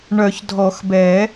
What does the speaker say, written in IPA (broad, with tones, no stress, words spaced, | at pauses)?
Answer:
ɳœ˨˩˦çdʱɔ˨˩˦xbɛ˨˩˦